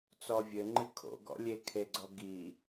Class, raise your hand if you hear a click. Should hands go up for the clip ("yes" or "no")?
yes